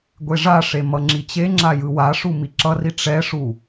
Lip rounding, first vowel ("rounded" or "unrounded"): unrounded